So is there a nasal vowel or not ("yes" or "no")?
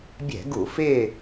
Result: no